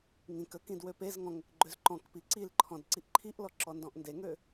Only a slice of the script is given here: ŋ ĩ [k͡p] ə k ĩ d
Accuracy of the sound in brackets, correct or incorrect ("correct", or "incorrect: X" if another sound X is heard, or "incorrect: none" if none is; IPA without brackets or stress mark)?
incorrect: k